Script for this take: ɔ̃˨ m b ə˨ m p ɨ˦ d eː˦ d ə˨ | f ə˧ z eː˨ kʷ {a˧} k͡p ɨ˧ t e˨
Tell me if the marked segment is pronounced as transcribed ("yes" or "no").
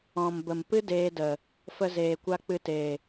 yes